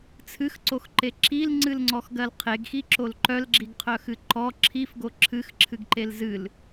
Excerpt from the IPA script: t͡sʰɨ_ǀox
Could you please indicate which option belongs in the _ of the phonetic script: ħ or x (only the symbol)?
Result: x